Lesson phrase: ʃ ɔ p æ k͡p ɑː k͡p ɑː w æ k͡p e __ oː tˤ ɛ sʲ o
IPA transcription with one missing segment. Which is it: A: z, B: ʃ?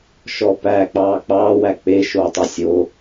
B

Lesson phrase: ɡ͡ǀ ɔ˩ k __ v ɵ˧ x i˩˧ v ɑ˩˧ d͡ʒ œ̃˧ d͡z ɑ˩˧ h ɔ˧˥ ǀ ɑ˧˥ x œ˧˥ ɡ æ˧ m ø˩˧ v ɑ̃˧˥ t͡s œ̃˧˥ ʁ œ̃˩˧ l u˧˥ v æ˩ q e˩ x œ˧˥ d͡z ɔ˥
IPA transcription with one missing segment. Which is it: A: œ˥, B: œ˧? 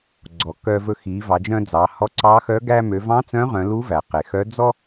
B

